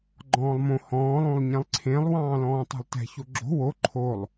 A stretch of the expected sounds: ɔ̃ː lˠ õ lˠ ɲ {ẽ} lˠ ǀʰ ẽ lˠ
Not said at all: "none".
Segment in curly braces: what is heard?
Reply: ɛ̃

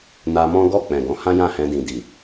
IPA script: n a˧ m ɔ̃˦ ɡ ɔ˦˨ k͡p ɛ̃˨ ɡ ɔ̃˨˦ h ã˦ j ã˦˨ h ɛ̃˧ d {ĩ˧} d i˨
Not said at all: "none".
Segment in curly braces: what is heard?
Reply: ĩ˨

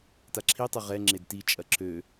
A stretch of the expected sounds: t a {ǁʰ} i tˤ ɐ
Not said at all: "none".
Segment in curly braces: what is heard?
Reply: ǁʰ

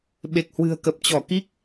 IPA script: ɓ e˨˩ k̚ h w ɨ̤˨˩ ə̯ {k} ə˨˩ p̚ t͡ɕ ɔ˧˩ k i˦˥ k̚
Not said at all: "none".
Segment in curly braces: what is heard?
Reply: k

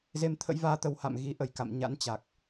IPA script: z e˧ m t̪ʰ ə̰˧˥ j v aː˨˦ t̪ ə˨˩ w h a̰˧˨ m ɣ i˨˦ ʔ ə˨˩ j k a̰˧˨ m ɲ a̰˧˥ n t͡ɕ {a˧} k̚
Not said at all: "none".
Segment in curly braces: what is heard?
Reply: a˨˩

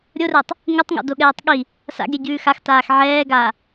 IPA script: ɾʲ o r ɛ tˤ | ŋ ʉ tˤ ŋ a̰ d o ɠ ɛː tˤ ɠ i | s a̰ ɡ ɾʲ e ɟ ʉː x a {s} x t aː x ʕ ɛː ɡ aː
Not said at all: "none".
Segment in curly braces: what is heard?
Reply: none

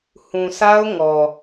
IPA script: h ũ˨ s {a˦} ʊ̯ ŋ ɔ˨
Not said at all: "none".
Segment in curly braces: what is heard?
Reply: a˦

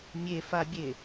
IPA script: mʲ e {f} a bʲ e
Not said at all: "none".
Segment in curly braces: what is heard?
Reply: f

